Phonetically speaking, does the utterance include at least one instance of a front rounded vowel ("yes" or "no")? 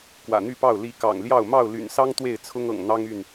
yes